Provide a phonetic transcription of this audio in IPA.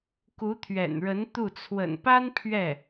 k u˧˥ t̪ʰ ɥ ɛ̰˨˩ n ɻ ə˧˥ n t̪ u˥˩ t͡sʰ w ə̰˨˩ n p a˥ n pʰ ɥ ɛ˥˩

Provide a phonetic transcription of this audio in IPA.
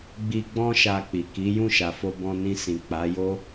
ɡ͡b i˧ ɡ͡b ɔ̃˦ ʃ a˧ k͡p i˨ k i˨˦ j ũ˦˨ ʃ a˨ f o˧ b ɔ̃˧ n ĩ˧ s ĩ˨ k͡p a˨˦ j o˦

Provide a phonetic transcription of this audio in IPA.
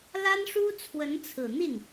l a˥ n ʂ u˥ t͡sʰ w ə˧˥ n t͡sʰ ɹ̩˨˩ n̪ i˥˩ n

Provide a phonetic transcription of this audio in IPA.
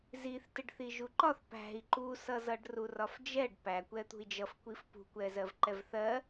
z i θ t ɪ ɖ θ i ʒ u ǃ ɒ θ p æ̤ i̯ ǃ u s ʌ z ʌ ɖ r u r ɒ f d͡ʒ ɛ ɖ p æ kʷ ɛ t̪ ṳ i̯ d͡ʒ ʌ f kʷ i f p ṳ kʷ ɛ z ɜ v ǃ ɛ v θ ɜ

